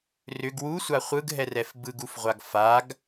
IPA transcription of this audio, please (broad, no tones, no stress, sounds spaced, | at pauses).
r ʏ ɡ w u sʷ a χʷ ɯ ɡ ɦ ɛ r ɛ f b ɯ ɡ u f ʁʷ a ɡ f a ɡ